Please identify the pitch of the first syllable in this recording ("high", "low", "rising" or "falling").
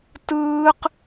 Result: high